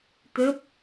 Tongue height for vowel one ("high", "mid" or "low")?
mid